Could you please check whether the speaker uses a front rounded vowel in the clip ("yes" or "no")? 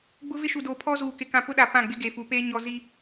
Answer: no